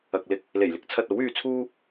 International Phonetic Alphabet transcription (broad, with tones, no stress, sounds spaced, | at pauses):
ɐ˨ k̚ l ɪ˧ k̚ | l e˨˩ j l ɪ˧ k̚ t͡sʰ ɐ˨ t̚ o˨˥ w yː˧ t͡sʰ uː˥